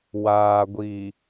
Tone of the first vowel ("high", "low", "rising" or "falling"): low